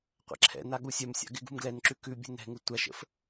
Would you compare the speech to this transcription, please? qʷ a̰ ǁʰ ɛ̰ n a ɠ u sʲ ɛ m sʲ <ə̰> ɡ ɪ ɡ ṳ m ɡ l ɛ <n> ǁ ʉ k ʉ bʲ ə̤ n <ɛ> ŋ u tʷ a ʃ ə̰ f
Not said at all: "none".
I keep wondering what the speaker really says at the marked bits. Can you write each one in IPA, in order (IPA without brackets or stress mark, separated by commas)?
a̰, n, ɛ̤